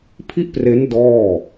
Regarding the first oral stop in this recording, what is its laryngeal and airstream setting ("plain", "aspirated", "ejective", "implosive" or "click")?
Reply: aspirated